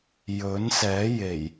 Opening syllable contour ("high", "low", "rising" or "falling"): rising